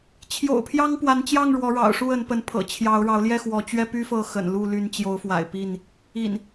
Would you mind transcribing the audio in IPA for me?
t͡ɕʰ j o̰˨˩ ʊ̯ pʰ j ɑ˦ ŋ p w a˨˦ n t͡ɕ j ɑ˥˨ ŋ ɻ w ɔ˨˦ ɻ ɑ̰˨˩ ʊ̯ ʂ u˥˨ ə˨˦ n p ə˨˦ n pʰ ɤ̰˨˩ t͡ɕʰ j ɑ˨˦ ʊ̯ ɻ ɑ˨˦ ʊ̯ l j ɛ˥˨ x w ɔ˨˦ t͡ɕ ɥ ɛ˦ p y˦ f ɤ˥˨ x ə̰˨˩ n l u˥˨ l y˨˦ n t͡ɕ j o˨˦ ʊ̯ f w a̰˨˩ ɪ̯ p i˥˨ n | ḭ˨˩ n

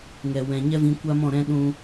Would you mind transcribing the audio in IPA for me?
ŋ ɛ˨ w ɛ̃˨ ɲ ɛ˦ v ĩ˧ kʷ a˦ m ɔ̃˦˨ ɾ ɛ̃˦ ɗ ũ˦

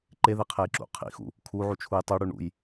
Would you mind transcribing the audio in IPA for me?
ǃ e ð e qʰ e j ǁ ṵ qʰ ḭ x ṵ | kʰ u ʕ u t͡ʃʰ u j tˤ u ɽ u ɳ ṵ j

